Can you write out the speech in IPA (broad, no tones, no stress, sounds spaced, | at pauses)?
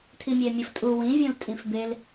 tʰ i mʲ e mʲ ɯ f tʼ u w ĩ vʲ ũ l tʼ ĩ f b e l